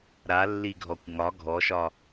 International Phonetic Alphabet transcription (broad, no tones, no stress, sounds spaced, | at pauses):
ɾ a lː i ɡʱ ɔ kʷ ŋ ɒ ɡʱ ɔ ʃ ɒ